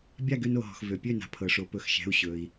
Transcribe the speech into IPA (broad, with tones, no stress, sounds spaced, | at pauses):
bʲ a˥˨ ɡ ø˧ n o˩ ɦ ɔ̤˩ x v ø˩ pʲ ø˥˨ n a̤˩ pʰ ɤ˩ ʂ o˩˧ p ɵ˩˧ x ʃ ɛ̤˩˧˩ u̯ ɕ ɵ˩ i̯